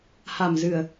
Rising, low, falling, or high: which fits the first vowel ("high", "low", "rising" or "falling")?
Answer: low